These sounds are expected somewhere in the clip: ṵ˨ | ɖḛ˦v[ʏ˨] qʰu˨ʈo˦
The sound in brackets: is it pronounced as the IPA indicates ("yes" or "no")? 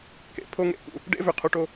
yes